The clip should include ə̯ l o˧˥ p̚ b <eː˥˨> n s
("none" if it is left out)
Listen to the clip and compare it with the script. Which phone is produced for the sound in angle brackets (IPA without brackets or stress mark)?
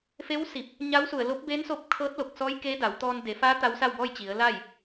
eː˧˥